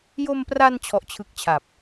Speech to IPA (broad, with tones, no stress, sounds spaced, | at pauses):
j o˧ m p r a˧ n t͡ɕʰ ɔ˦˥ ʔ t͡ɕʰ ɯ˦˥ k̚ t͡ɕʰ a˨˩ p̚